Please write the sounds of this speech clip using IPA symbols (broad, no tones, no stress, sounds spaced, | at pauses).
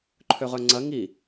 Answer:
ǃʰ ø ʁ œ ŋ͡ǀ ɐ ŋ i